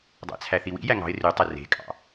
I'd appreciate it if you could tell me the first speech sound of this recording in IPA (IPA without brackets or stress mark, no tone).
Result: dˤ